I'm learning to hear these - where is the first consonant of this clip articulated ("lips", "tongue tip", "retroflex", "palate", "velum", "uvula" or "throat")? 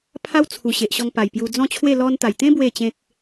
lips